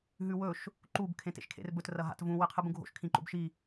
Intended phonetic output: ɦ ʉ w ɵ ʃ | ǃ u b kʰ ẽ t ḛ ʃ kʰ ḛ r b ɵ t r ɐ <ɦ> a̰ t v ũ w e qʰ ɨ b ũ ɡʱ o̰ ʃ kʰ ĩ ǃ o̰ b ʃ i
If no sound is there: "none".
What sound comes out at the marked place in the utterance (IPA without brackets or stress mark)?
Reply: ɦ